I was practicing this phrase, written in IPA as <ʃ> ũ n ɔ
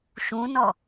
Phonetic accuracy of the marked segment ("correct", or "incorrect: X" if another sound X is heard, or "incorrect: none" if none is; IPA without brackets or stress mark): correct